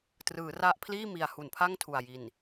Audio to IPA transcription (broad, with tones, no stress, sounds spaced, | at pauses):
t r ɯː˩˦ r a˦˥ ʔ pʰ l iː˥˩ m i˨˩ a̯ h u˨˩ n pʰ a˥˩ ŋ tʰ u˨˩ a̯ j i˨˩ n